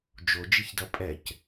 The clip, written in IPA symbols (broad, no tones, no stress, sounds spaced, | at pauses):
d͡ʒ o d͡ʒ i ç d ʌ pʼ ɛ c